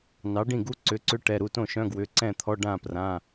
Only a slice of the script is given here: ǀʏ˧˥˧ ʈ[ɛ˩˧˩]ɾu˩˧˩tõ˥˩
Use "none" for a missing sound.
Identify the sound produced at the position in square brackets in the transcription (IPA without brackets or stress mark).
ɛ˩˧˩